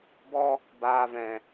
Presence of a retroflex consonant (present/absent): absent